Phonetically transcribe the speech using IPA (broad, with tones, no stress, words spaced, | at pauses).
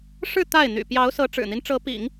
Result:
ʂɻ̩˥˧ t̪a˥˩ɪ̯n̪y̰˨˩ pjɑ˧˥ʊ̯sɤ˧˥ ʈ͡ʂɻ̩˨˩n̪i˦nʈ͡ʂɤ˧˥ pḭ˨˩˦ŋ